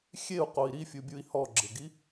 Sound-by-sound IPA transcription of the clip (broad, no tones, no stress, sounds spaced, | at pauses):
xʲ e u̯ q o i̯ ɾ i fʲ u bʲ u i̯ h ɔ ɡ͡ǁ ɪ ɡ i